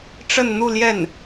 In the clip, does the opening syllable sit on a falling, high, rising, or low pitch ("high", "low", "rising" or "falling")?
falling